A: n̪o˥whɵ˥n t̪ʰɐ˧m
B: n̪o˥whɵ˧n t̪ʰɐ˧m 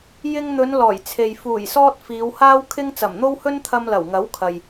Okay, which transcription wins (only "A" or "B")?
A